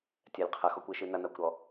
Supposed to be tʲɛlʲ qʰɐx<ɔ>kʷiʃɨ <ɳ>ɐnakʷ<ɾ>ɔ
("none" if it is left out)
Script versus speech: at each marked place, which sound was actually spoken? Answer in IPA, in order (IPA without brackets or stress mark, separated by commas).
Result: ɔ, n, ɾ